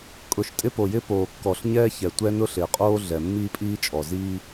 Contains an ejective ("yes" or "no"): yes